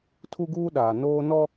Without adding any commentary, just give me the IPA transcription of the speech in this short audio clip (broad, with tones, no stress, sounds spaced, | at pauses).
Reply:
tʰ u˦ ɡ uː˦ ɗ aː˨ n oː˦ n ɔ˦